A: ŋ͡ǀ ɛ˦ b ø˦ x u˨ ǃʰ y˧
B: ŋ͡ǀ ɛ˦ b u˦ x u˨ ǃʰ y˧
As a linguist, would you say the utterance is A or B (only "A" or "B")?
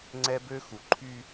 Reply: A